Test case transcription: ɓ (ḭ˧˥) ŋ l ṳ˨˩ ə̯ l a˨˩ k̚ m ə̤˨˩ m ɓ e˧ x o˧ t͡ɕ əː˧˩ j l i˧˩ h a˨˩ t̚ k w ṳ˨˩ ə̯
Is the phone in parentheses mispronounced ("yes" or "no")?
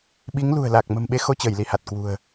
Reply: yes